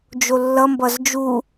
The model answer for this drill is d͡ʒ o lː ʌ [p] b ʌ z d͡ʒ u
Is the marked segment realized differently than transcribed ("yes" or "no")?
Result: yes